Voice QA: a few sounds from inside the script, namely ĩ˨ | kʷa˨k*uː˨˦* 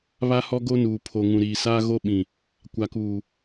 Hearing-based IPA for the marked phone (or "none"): uː˨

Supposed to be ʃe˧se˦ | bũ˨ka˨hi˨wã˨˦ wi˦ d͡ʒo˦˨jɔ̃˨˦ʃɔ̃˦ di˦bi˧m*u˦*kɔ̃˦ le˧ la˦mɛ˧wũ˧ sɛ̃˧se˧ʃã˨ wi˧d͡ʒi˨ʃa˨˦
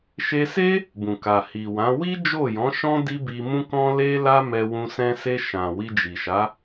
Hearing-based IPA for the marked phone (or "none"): ũ˦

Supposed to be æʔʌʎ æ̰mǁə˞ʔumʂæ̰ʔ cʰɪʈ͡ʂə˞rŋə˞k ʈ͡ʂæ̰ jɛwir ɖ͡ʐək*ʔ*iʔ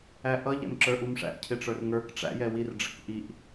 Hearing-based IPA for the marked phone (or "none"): ʔ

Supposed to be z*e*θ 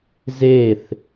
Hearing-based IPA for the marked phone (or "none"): e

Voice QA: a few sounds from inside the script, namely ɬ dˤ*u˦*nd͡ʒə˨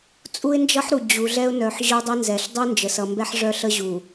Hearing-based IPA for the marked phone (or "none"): u˦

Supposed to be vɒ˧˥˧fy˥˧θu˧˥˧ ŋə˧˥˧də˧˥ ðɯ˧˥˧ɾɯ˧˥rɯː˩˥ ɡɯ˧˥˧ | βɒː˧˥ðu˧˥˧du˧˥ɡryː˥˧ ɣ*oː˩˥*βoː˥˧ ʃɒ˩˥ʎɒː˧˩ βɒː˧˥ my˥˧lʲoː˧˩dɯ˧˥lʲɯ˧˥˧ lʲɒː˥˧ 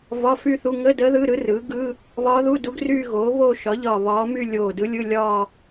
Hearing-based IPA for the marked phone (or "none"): oː˩˥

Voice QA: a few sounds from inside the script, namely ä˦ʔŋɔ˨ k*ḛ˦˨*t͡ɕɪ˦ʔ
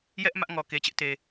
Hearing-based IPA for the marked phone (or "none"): e˨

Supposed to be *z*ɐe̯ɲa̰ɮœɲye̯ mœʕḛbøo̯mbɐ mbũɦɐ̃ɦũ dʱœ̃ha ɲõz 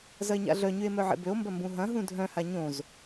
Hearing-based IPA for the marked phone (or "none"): z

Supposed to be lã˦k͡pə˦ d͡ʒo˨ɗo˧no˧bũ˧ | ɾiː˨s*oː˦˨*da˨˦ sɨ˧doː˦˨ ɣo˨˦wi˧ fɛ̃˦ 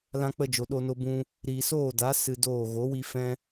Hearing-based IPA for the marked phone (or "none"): oː˦˨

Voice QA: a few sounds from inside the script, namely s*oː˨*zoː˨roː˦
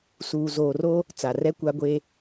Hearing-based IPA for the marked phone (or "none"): uː˨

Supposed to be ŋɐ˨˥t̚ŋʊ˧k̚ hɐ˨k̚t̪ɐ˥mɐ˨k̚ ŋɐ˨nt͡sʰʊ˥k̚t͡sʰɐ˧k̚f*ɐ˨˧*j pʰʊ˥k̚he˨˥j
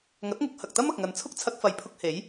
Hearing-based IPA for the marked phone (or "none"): ɐ˨˧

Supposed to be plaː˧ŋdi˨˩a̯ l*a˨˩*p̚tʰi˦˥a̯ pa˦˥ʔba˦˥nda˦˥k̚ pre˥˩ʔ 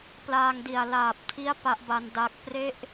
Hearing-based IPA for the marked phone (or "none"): aː˨˩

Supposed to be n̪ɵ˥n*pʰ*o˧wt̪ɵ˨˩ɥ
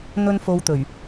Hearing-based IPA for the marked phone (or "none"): f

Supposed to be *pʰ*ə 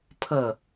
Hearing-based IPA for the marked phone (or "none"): pʰ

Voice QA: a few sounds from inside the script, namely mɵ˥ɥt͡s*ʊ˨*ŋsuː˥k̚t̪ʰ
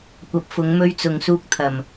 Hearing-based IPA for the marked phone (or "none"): ʊ˨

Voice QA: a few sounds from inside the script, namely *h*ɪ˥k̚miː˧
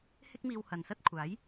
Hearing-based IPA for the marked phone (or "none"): h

